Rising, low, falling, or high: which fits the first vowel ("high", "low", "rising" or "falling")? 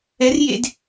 rising